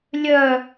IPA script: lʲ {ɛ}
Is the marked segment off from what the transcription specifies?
yes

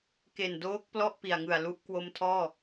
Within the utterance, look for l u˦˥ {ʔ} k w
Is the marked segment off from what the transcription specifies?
no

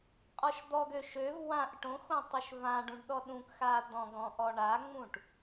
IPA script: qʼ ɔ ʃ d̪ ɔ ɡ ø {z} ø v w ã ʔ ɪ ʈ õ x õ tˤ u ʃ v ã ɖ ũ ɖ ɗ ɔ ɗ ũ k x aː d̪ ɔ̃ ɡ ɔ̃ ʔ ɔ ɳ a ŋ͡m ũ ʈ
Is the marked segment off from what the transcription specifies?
yes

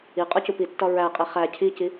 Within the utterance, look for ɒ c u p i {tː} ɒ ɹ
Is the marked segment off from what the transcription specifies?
no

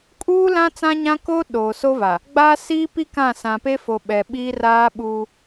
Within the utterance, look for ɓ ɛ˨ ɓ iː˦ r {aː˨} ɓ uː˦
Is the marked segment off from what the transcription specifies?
yes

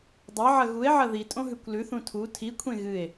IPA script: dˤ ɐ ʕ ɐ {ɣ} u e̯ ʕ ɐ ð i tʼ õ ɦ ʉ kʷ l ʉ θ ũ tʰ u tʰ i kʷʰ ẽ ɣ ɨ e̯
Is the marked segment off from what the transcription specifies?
no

